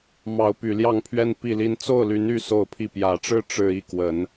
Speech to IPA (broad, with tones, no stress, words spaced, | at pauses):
mɑ˨˦ʊ̯py˨˩ljɑ˥˨ŋ pʰɥɛ˦npi˥˨li˦n t͡so˥˨ʊ̯ly˨˦ny˥˨ so˥˨ʊ̯pʰi˥˨ pjä˨˩ʈ͡ʂɻ̩˦ ʈ͡ʂɻ̩˦ i˥˨kwə˨˦n